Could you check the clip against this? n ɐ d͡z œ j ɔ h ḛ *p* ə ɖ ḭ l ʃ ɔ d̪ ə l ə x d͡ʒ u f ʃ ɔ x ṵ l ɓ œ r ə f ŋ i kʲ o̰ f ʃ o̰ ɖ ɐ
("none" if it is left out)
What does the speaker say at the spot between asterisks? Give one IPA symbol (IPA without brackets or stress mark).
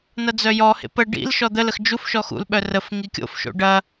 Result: p